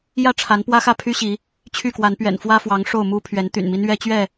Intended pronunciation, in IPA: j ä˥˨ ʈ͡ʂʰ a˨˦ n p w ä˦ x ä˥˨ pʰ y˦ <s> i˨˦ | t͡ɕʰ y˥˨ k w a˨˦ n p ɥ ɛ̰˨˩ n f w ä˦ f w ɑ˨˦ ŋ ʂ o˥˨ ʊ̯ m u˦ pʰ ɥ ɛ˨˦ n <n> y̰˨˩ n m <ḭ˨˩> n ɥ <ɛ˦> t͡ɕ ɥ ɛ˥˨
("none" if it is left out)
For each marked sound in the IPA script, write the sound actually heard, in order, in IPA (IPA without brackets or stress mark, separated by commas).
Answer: ɕ, t̪, i˦, ɛ˦